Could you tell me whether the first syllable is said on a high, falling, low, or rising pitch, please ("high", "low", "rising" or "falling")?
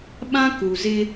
high